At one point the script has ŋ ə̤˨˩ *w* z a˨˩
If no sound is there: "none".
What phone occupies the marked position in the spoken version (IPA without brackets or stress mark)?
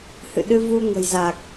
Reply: j